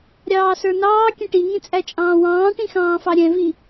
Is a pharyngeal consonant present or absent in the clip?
absent